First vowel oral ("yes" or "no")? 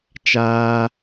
yes